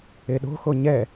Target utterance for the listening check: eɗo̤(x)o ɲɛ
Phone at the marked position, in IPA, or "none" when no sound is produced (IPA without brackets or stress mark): x